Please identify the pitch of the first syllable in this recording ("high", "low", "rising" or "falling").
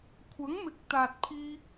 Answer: rising